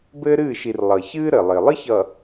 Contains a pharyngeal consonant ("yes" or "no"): no